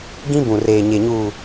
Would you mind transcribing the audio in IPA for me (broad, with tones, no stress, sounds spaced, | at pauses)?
ɡ ĩ˦ b ũ˨ r eː˨ ɲ e˨ ɲ uː˨